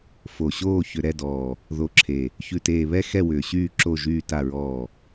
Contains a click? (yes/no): yes